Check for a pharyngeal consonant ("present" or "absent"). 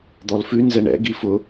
absent